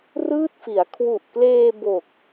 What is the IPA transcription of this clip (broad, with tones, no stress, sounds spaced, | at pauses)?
r ɯː˥˩ t̚ f i˩˦ a̯ kʰ w u˨˩ ʔ k l eː˧ b o˨˩ k̚